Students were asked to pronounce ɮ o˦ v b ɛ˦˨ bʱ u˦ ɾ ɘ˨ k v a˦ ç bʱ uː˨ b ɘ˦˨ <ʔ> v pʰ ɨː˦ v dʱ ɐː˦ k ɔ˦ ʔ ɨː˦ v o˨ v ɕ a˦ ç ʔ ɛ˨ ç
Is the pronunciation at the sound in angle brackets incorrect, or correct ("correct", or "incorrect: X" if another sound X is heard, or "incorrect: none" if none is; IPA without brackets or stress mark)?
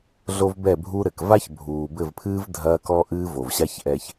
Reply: incorrect: none